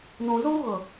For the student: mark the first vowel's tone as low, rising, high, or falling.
low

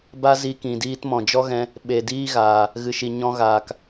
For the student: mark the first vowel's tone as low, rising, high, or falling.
high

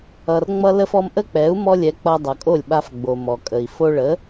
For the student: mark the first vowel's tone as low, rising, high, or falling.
low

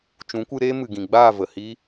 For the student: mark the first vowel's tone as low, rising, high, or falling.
rising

